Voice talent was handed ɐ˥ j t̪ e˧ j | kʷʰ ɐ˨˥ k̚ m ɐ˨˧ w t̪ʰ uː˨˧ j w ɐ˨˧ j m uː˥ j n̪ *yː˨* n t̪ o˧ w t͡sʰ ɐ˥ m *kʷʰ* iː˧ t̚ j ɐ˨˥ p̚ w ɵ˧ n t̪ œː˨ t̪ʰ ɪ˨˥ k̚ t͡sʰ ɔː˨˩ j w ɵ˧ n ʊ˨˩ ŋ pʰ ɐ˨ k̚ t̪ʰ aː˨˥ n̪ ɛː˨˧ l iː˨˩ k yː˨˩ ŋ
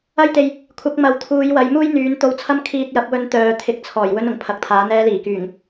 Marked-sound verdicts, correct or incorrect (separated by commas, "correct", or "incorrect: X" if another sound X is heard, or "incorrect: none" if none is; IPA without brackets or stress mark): incorrect: yː˨˥, incorrect: kʰ